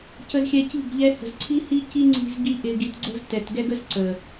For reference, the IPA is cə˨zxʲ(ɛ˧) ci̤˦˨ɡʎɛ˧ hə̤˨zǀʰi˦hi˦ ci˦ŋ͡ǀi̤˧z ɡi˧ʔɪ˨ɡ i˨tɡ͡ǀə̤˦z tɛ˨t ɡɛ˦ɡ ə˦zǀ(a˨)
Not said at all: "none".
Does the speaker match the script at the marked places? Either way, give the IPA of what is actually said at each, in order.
ɛ˨, ə˨

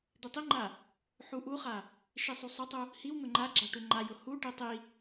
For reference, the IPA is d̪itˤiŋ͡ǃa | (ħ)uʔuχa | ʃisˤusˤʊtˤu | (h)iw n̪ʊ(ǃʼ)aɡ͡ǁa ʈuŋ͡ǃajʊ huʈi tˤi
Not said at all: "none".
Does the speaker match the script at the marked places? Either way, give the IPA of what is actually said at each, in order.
ħ, h, ŋ͡ǃ

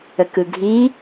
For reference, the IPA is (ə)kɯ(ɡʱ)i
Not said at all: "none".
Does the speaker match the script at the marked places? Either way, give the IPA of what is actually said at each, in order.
ə, ɡʱ

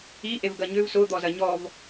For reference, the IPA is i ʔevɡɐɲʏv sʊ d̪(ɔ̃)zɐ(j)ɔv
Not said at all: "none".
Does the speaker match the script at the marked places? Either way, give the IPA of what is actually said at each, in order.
ɔ, ɲ

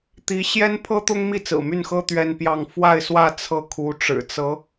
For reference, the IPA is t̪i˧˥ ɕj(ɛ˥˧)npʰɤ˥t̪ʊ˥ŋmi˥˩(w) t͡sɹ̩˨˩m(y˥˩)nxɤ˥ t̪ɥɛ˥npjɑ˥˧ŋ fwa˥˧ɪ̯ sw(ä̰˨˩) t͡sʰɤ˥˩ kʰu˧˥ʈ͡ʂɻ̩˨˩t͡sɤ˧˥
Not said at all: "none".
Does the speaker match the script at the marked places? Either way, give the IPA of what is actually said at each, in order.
ɛ˥, none, y˥˩, ä˥˧

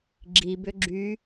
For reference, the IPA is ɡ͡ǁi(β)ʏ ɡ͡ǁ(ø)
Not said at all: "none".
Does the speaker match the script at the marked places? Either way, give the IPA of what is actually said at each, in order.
b, y

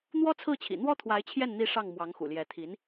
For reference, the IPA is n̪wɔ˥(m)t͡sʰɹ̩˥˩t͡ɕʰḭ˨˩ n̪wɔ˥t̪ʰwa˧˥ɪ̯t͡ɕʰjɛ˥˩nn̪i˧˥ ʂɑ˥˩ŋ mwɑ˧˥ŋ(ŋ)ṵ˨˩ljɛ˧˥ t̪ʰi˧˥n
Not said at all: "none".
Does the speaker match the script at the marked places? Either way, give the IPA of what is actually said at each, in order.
none, x

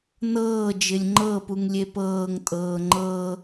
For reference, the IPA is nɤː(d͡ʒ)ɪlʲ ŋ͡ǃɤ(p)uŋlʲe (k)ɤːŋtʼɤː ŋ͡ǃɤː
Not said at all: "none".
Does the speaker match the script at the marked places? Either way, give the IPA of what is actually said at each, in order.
d͡ʒ, p, p

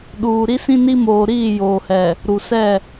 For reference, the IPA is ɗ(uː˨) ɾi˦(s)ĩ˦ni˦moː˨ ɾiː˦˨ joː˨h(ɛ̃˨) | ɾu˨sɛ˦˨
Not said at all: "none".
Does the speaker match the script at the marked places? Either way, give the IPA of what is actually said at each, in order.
uː˨, s, ɛ˨

